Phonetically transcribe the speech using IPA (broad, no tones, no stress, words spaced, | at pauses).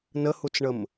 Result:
nəhut͡sɳəm